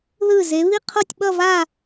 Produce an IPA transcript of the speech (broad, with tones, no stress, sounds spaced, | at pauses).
ð ɯ˧˩ z e˩˧ β i˥˧ qʰ o˥˧ tʲ ɓ ʌ˥˧ v a˥˧